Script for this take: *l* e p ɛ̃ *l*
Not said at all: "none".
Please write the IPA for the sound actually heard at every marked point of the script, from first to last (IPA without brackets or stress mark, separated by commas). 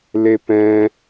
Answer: l, none